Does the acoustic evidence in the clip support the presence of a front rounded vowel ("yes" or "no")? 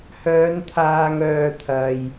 yes